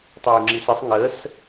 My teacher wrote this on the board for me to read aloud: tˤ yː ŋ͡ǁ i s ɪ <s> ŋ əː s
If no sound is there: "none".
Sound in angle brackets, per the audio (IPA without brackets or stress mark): sˤ